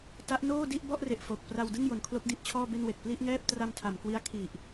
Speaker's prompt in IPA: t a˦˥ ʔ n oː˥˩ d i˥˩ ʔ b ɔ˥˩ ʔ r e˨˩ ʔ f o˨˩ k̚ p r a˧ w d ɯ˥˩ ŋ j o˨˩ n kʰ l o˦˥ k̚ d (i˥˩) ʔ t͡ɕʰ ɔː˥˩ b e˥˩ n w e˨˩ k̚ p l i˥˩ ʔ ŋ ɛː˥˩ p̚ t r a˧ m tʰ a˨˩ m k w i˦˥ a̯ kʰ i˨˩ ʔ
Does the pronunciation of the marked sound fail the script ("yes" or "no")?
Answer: no